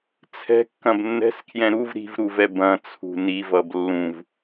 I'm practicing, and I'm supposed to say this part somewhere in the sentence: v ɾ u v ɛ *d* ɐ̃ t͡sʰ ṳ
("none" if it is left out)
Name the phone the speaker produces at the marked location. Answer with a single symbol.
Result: b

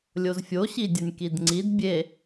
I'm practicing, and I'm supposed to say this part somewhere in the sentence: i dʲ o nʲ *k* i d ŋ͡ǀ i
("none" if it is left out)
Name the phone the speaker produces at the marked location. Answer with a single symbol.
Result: k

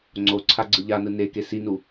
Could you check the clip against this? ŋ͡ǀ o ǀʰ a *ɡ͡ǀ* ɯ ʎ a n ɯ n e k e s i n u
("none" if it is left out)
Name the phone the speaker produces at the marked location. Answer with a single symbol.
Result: ɡ͡ǀ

